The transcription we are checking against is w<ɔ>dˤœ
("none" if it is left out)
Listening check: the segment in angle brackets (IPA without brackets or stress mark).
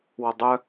ɔ